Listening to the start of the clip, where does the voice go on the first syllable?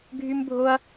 high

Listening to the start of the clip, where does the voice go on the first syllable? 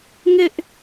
high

